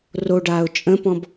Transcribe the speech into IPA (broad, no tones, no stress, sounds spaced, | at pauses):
r o ɖ aː ʊ̯ t͡ʃʼ ə̃ p ɔ̃ b